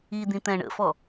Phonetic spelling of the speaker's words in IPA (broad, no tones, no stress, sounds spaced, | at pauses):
i d̪ ĩ t̪ ɛ̃ ɳ ə̰ f ɔ